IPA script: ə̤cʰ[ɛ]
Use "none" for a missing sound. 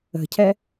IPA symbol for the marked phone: ɛ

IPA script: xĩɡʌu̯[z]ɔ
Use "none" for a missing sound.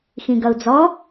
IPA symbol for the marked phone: d͡z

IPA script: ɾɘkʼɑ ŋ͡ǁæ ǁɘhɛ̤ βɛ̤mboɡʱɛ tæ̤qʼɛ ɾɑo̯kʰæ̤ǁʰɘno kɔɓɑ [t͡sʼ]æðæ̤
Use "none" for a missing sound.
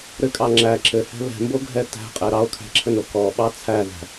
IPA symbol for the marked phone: t͡sʰ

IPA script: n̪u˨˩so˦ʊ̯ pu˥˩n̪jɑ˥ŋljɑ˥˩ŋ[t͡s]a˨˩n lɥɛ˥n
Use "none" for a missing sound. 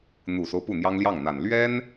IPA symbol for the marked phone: n̪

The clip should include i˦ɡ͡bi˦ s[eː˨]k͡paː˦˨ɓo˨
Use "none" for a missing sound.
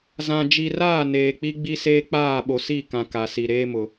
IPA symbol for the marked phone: eː˦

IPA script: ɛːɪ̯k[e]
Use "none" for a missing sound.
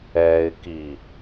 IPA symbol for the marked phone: i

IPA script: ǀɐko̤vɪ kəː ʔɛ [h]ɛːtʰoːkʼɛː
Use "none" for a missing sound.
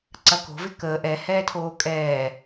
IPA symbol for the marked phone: h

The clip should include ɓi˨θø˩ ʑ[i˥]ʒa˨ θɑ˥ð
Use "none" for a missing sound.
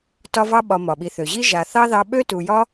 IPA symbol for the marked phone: i˥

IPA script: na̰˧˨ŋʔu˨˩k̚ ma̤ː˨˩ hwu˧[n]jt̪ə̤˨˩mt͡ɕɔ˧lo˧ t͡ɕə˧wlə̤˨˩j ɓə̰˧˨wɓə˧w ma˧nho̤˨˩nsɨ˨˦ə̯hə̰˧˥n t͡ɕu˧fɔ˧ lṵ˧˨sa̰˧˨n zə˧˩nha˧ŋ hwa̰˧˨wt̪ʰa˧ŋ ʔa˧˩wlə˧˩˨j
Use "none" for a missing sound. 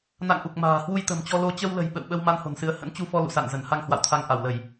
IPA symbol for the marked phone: none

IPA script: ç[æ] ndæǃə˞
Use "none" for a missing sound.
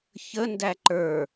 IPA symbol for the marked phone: ə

